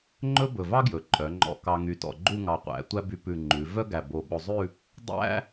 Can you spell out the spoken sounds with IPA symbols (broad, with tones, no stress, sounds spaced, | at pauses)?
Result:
ŋ͡ǃ ɵ˥ b ɵ˧˩ v ɑ˥ ɡ j ɵ˩˧ ǃʼ œ˩˧ ŋ͡ǃ ɔ̰˧ k ɑ˧ ŋ y˧˩ t ɔ̰˧˩ ɡ͡ǃ u˥˧ ŋ ɑ˧˩ qʷ æ̰˩˧ tʷ æ˥ b y˧ p ʉ˧˩ ŋ͡ǃ ʉ˩˧ v œ˥ ɡ æ˧˩ b o˧˩ ɓ o˧ zˤ ʉ˥˧ | dˤ æ̰˥